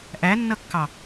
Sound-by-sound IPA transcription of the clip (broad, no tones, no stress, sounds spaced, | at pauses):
ʔ æ nː ʌ kː ɑ